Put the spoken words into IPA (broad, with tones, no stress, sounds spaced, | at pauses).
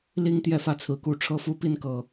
l i˦ ŋ t̪ j ɛ˥˨ f ä˥˨ t͡sʰ ɹ̩˨˦ k u˨˦ ʈ͡ʂʰ ɤ˦ f u˦ p i˥˨ n k ɤ˨˩